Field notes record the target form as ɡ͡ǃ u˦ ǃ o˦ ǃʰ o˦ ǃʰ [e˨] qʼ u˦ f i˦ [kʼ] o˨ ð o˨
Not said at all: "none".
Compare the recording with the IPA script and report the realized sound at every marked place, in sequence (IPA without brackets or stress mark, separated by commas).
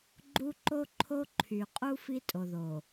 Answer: y˨, tʼ